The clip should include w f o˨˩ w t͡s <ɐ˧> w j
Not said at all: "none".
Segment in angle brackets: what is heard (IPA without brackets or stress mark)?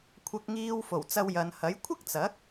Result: ɐ˧